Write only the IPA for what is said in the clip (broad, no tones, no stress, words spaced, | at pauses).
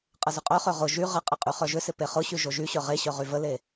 qʼəzʏqʼœχø ʁʊ ʒy ʁəqʼə qʼyχœʒʏsɪ peχʊɕy ʒoʒyɕœ ʁeɕœ ʁyvəle